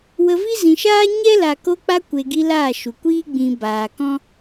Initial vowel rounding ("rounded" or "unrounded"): unrounded